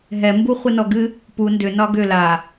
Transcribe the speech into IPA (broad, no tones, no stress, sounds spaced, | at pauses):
ɦ ɛ m b u χʷ ɨ n ɔ ɡ ɨ | p u n d ʏ n ɒ ɡ ʏ l a